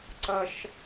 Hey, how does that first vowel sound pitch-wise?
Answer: low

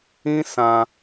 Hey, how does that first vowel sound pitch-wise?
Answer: high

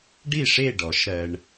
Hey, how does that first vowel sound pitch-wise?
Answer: falling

